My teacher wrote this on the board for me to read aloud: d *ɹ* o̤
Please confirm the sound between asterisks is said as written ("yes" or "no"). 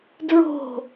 yes